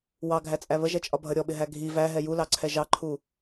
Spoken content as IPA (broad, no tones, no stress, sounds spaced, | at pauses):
w ɑ ɡʱ æ t͡sʼ æ β ə ʒ ɛ t͡ʃʼ ɒ bʱ ʌ ɾʲ ɔ ɓ ɪ ɦ æ ɡʱ i v æ ɦ ɛ j u l ɑ ǀʰ ɛ ʒ ɑ ǃʰ u